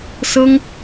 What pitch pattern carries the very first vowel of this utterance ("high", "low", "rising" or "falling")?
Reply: high